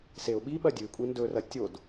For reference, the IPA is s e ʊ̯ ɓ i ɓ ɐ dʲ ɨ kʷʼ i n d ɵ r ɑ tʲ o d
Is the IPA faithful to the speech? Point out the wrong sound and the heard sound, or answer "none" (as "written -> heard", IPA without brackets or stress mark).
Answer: ɑ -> ɐ